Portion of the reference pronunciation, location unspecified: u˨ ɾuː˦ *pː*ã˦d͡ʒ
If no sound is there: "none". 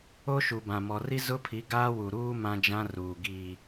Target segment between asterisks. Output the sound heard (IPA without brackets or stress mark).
m